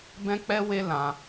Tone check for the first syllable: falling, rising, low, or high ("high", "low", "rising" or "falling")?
high